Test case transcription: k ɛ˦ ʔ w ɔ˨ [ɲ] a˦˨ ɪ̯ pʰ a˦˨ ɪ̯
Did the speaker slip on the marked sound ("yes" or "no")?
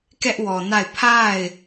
yes